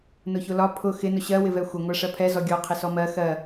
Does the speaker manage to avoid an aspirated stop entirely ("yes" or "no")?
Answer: no